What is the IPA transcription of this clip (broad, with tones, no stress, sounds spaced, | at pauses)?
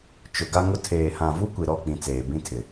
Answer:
t͡ʃ ʊ˨ ɡ a˦ ŋ ʊ˦ tʰ eː˨ h ã˨ v u˦ kʷ i˨ ɾ ɔ˦˨ k͡p ĩ˨ t͡s eː˨ b ĩ˦ tʰ ɪ˨